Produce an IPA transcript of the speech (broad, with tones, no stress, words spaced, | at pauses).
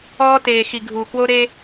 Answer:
ɔː˦teː˨xi˨ ɡʱuː˨kwo˦ɾe˦